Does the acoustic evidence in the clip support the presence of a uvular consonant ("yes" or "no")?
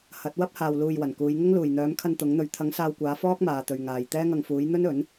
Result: no